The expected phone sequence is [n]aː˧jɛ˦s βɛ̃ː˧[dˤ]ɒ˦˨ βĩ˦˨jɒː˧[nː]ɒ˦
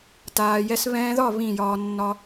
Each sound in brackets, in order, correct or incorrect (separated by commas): incorrect, incorrect, correct